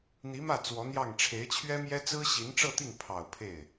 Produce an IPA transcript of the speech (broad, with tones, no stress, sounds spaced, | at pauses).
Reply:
n̪ i˧˥ m ä˥˩ t͡s w ɔ˧˥ n̪ j ɑ˥˩ ŋ ʈ͡ʂʰ e˧˥ ɪ̯ t͡ɕʰ ɥ ɛ˥ m j ɛ˥ t͡s ɹ̩˥ ɕ i˧˥ n ʈ͡ʂ ɤ˥˧ t̪ i˥˩ ŋ pʰ ɑ˨˩ ʊ̯ pʰ e˥˩ ɪ̯